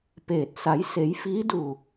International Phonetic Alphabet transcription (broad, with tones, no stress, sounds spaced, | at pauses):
p eː˧˩ t̚ s a˩˧ j s e˩˧ j f iː˧˥ d uː˧˩